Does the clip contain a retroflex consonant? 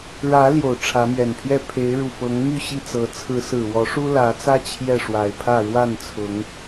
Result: yes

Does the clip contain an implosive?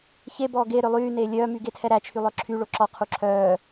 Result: no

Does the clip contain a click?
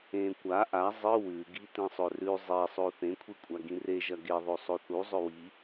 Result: no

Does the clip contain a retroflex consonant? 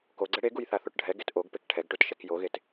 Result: yes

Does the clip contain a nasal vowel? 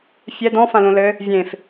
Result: yes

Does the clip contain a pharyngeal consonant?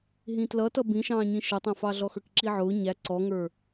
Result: yes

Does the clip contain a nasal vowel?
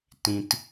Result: yes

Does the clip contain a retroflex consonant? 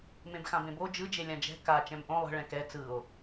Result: yes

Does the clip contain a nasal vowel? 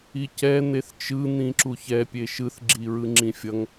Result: yes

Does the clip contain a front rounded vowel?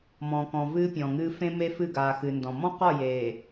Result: no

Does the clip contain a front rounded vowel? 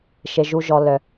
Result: yes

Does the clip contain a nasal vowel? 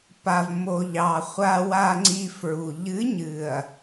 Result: no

